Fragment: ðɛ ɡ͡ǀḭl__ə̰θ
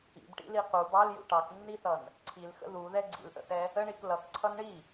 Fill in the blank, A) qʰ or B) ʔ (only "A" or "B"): B